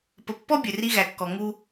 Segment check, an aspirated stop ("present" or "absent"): absent